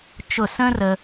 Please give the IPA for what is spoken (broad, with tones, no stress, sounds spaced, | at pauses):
t͡ʃ ʊ˧˩ s ə̃ː˥ r ə˧